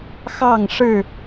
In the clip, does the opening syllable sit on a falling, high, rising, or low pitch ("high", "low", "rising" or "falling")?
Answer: falling